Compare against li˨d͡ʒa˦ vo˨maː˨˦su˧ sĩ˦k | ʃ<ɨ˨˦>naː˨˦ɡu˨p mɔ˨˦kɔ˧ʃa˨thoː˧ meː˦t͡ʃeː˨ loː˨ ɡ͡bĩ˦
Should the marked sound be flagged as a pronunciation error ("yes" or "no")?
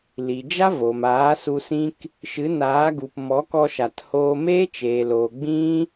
no